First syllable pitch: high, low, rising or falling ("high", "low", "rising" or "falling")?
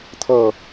falling